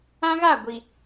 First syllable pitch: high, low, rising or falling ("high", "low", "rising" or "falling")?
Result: high